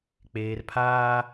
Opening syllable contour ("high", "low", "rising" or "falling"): low